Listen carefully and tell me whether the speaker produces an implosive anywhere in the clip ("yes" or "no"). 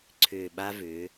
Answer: yes